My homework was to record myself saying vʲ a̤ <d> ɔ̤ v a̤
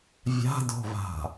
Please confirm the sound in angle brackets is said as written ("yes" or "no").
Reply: yes